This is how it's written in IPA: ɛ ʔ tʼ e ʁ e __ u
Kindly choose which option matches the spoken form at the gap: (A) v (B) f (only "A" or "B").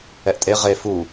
B